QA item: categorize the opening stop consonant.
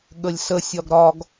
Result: implosive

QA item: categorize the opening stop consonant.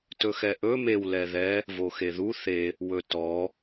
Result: plain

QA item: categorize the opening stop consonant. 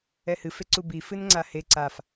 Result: click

